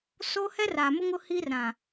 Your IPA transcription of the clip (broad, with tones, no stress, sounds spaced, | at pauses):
s o˦ h ɛ˦ r aː˨ m ʊ˦ ŋ ʊ˦ h iː˦ r ɾ ã˨